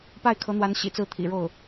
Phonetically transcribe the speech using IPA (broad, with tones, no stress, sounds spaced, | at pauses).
p a˥˩ ɪ̯ kʰ ɤ˧˥ n̪ w a˧˥ n ɕ ḭ˨˩ t͡s ɹ̩˥˩ t̪ʰ ḭ˨˩ ɻ o˥˩ ʊ̯